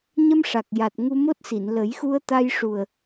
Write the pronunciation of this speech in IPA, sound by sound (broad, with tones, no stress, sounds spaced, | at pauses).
ɲ ə˧ m ʂ a˨˩ k̚ j a˨˩ t̚ ŋ u˧ m o˦˥ t̚ s i˨˩˨ n l ə˨˩˦ j x u˧ ə̯ t̪ a˧ j ʂ u˨˩ ə̯